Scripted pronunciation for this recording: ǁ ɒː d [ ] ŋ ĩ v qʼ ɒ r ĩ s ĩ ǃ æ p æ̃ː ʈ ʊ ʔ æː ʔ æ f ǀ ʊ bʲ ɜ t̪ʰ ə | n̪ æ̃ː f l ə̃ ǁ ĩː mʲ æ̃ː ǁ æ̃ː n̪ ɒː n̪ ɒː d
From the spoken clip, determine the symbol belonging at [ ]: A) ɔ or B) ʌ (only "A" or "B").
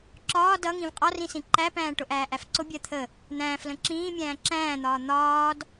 B